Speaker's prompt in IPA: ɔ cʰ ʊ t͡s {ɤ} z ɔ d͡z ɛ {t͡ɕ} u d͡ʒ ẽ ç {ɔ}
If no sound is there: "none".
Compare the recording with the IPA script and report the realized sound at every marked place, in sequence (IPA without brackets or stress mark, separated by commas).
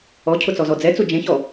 ɔ, t͡s, ɔ